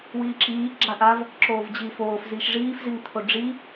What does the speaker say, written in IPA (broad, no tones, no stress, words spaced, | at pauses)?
wiːǁiː ɡ͡ǁaʔav | ǁoːvd͡ʑiːfoːf ziːʃʐiːf ziŋt̪ʰoɖ͡ʐi